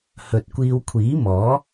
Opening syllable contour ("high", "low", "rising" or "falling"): low